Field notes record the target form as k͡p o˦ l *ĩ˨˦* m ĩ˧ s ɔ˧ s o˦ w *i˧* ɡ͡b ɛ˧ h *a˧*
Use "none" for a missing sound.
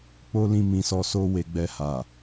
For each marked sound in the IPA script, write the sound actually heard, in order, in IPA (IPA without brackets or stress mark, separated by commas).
ĩ˧, e˧, a˨